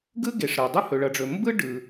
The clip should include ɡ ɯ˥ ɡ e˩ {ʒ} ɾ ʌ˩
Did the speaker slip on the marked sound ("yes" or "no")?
yes